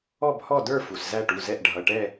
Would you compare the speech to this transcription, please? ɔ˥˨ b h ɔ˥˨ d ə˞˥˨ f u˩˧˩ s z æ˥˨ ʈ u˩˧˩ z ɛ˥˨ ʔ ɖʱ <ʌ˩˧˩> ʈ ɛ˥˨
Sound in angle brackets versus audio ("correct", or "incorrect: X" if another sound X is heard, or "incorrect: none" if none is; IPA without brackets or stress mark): correct